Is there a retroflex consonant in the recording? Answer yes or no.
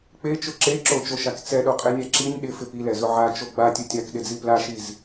no